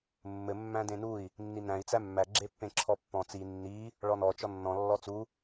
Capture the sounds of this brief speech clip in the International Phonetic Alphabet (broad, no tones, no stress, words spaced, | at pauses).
mːɘ mːæ̃dẽnui̯ | nːinæ̃i̯ t͡sæmːæ ɡ͡ǁepːẽǁʰɔpːɔ̃ t͡si nːi | ɭɔnɔ t͡ʃɔnːɔ̃ lːɔt͡su